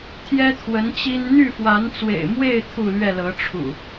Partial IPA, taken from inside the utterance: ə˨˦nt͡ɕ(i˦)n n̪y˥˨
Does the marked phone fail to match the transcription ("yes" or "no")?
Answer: no